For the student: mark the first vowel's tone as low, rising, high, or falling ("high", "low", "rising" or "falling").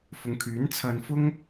low